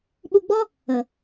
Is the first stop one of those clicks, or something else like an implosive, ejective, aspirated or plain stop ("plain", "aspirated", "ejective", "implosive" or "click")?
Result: implosive